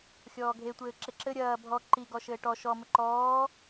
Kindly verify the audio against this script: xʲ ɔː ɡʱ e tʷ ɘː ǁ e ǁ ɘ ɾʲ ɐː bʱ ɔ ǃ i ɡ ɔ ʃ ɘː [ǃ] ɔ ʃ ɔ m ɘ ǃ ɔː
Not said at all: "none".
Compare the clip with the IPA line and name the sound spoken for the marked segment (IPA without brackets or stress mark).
ʈ